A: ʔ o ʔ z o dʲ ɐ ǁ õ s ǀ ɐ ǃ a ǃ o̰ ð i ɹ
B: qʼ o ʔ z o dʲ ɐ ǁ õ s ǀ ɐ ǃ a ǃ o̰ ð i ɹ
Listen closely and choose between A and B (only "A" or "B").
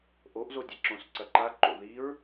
A